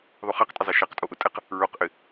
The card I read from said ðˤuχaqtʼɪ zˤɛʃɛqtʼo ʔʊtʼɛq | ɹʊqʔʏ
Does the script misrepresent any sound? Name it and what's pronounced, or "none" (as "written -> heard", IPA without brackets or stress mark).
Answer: ʏ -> ɪ